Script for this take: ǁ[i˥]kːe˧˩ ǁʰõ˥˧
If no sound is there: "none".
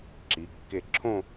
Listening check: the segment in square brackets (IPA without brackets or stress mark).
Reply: i˩˧